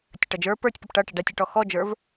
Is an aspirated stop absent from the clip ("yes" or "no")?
yes